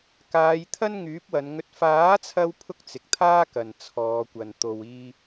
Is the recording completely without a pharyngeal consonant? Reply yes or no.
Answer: yes